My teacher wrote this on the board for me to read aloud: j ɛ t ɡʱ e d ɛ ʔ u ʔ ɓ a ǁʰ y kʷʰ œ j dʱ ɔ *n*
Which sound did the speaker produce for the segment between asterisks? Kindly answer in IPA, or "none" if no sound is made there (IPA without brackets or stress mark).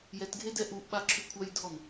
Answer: n